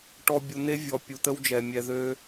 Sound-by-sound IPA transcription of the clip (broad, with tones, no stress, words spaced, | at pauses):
ʈɔ˨bʲu˨n̪e˦ vʲɔ˨pʲu˨t̪ə˦wd͡ʒɛ˨ mʲɛ˨ðø˦